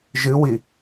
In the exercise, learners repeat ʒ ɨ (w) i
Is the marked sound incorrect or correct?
correct